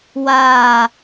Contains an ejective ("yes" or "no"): no